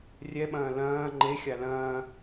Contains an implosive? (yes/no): yes